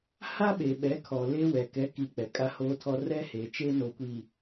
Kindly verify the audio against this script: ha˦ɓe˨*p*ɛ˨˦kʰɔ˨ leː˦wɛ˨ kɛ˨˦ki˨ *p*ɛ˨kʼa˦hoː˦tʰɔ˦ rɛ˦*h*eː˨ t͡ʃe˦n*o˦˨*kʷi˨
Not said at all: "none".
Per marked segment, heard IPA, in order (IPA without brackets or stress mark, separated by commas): ɓ, k͡p, h, o˨